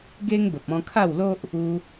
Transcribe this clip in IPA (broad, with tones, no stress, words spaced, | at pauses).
ɡe˦ŋ bə˨p̚ɔ̃˧kʰa˥˧wlo˦ʔ | u˧